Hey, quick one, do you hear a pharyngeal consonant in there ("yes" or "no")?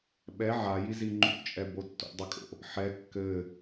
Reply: yes